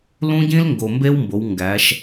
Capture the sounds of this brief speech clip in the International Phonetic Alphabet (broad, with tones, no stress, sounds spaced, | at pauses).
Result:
l ũ˦ ɟ ĩ˦ l ŋ ɡ o˨ m b e˦ w m b o˨˦ w ŋ ɡ æ˨˦ ʃ